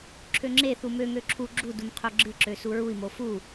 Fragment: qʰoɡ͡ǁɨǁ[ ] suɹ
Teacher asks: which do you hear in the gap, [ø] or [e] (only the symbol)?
ø